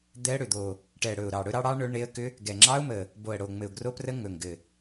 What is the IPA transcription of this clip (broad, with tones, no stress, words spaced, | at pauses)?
d̪ɛ˦˥ə̯ɽʏ˨˩d̪o˨˩ | ʈɛ˨˩ɽɵ˨˩ʊ̯ ɾɑ˨˩ ɽɵ˦˥ɾɑ˦˥ ɽɑ˦˥ ɳɵ˦˥ɳe˦˥ə̯ kʏ˦˥ | ɡɛ˨˩ŋ͡ǁɑ˦˥ʊ̯mə˨˩ | bo˨˩ə̯ɽo˨˩ŋ͡mɘ˨˩ʊ̯ ɡro˦˥prə˦˥ ŋɵ˨˩ŋɡɘ˨˩